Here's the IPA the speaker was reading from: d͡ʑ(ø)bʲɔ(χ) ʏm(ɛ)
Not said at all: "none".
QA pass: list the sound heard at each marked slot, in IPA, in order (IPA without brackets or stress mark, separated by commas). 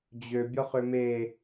ø, χ, e